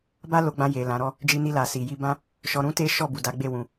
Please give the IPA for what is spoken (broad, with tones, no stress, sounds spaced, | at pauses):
b a˦ l o˧ ɡ͡b ã˧ j e˨ l ã˨˦ ɾ ɔ˦ | d͡ʒ i˧ n i˧ l a˨ s i˨ j i˧ b ã˦ | ʃ ɔ˧ ɾ ũ˦ t e˦ ʃ ɔ˦˨ b u˨ d a˨˦ ɡ͡b e˦˨ w ũ˧